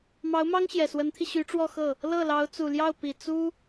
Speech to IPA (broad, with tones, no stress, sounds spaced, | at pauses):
m ɑ˧˥ ʊ̯ m ɑ˥ ŋ ɕ j ɛ˨˩ s w ə˧˥ n t̪ʰ i˧ ɕ y˧˥ ʈ͡ʂ w ɔ˥˧ x ɤ˥˩ | l ɤ˥˩ l ɑ˧˥ ʊ̯ t͡s u˨˩ l j ɑ˥˩ ʊ̯ p i˨˩ t͡s u˥